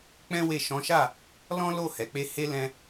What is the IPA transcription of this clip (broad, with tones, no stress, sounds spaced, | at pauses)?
k͡p ɛ̃˦ w e˦˨ ʃ ɔ̃˨˦ ʃ a˦˨ | l ɔ̃˦ l o˦˨ h ɛ˨ k͡p e˧ h e˦ l ɛ̃˧